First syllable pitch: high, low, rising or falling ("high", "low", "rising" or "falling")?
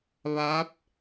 rising